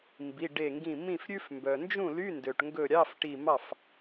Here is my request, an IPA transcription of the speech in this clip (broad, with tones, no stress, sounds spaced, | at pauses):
m b i˩˧˩ ɖ e˧˩ ŋ ɡ ĩ˧˩ m ĩ˥˩ f ɾʲ ʉ˥ f m b œ˩ n d͡ʒ ũ˥˩ l y˧˥˧ n d ø˩ ʈ ŋ ɡ ɵ˧˩ ɾʲ ɑ˧˥˧ f ʈ i˧˩ m ɑ˥˩ f